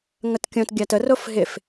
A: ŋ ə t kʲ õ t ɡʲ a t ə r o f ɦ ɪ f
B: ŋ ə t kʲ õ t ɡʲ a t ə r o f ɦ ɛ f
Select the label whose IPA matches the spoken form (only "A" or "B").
A